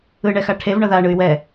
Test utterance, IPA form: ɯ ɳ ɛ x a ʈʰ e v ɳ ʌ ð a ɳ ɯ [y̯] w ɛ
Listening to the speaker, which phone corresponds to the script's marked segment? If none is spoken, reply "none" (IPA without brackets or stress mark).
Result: y̯